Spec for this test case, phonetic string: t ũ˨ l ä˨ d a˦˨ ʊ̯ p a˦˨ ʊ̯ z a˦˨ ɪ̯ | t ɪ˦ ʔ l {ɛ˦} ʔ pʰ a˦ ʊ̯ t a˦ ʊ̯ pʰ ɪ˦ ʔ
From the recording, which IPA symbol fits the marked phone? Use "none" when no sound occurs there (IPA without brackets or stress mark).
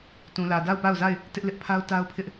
ɪ˦